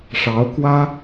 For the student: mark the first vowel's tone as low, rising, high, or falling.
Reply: rising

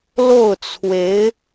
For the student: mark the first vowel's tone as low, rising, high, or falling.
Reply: falling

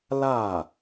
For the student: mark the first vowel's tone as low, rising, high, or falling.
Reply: falling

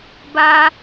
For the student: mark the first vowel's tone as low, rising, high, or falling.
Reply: high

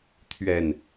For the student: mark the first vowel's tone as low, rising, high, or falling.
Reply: low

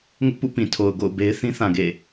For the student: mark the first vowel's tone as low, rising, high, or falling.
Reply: high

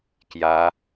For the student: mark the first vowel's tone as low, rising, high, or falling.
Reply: rising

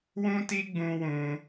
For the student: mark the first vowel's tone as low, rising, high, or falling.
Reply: high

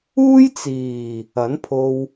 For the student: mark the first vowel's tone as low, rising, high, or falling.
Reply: high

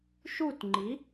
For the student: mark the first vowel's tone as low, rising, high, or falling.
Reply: falling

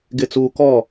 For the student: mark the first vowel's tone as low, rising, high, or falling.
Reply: low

